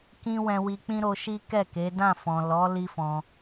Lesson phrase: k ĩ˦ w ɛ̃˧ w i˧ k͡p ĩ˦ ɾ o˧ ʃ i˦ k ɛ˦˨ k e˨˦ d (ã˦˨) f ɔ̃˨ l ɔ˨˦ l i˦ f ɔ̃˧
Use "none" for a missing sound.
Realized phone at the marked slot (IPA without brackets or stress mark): ã˦˨